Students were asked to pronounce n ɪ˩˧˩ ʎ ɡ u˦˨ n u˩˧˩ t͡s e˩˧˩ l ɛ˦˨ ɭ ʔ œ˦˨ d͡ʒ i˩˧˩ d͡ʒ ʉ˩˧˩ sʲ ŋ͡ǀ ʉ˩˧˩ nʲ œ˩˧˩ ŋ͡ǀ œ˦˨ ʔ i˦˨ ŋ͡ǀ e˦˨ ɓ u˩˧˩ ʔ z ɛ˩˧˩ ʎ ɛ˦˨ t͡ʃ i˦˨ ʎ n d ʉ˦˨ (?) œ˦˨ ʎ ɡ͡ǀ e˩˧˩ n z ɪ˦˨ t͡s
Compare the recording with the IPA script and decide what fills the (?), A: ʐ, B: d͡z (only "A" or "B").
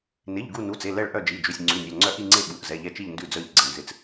B